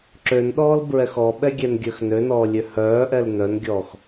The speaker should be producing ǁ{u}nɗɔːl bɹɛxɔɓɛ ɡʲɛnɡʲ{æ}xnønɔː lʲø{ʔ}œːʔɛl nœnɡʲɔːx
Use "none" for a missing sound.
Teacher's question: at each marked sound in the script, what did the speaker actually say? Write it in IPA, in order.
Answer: ø, œ, h

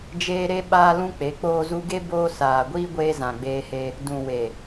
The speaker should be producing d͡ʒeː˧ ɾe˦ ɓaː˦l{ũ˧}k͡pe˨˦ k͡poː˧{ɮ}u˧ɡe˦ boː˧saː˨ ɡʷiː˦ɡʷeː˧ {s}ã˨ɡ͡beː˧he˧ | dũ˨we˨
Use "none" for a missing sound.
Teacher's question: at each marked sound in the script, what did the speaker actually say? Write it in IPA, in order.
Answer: ũ˦, z, z

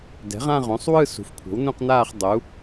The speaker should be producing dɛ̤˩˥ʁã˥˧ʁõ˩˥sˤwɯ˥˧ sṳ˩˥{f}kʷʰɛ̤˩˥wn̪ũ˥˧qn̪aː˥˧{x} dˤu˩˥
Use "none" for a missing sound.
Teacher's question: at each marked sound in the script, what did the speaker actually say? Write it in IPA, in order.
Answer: f, χ

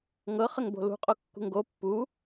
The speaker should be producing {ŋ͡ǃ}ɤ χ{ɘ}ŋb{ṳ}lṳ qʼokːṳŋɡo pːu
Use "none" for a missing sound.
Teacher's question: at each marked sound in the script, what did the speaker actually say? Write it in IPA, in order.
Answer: ŋ, ɘ, o̤

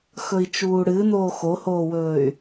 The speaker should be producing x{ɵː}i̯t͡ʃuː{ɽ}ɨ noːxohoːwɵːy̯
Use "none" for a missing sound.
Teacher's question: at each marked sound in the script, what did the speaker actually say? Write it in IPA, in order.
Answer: ɵ, ɽ

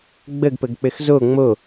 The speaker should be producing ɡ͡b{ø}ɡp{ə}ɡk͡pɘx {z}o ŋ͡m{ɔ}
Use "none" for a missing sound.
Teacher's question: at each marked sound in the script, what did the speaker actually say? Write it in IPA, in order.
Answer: ə, ə, z, o

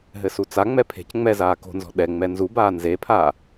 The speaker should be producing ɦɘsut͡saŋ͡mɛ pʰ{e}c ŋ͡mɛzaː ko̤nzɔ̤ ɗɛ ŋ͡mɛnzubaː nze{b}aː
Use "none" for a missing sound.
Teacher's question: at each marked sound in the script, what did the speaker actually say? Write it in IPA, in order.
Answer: e̤, pʰ

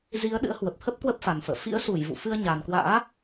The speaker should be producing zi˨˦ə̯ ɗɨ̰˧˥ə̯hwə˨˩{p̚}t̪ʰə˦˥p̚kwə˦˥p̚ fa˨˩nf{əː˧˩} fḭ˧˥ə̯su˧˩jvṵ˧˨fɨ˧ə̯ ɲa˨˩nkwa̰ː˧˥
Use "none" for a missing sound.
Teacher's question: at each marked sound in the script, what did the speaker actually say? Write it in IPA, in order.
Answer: p̚, ə̰ː˧˨

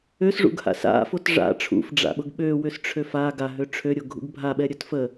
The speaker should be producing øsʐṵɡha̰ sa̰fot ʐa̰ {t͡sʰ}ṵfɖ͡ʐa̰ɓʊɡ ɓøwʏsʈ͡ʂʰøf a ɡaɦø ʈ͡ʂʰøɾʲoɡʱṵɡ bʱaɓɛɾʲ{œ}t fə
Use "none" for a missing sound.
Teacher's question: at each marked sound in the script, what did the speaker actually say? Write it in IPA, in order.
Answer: ʈ͡ʂʰ, œ

